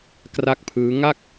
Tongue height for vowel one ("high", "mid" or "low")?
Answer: low